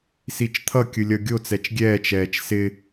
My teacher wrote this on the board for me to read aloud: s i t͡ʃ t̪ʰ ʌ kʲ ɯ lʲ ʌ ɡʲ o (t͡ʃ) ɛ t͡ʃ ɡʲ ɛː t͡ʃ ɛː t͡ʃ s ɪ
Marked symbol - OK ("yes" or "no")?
no